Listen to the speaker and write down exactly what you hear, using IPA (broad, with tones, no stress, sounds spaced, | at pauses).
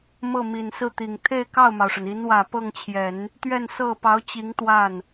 m ɤ˥˩ m i˨˩ n s ɹ̩˥˩ t̪ i˨˩ ŋ t̪ʰ e˥˧ ɪ̯ k ɑ˥˩ ʊ̯ m ɑ˩ ʊ̯ ʂ ə˩ n i˧˥ n w ä˨˩ p ɤ˥˩ ŋ t͡ɕʰ j ɛ˨˩˦ n | t̪ ɥ ɛ˥˧ n s ɤ˥˩ p ɑ˧˥ ʊ̯ t͡ɕ i˧˥ ŋ t̪ w a˥˩ n